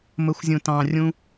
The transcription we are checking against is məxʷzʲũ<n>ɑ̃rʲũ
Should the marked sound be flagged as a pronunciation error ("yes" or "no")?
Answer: yes